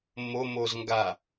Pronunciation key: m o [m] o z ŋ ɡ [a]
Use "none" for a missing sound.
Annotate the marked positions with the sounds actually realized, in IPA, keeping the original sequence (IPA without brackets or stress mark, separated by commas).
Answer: m, a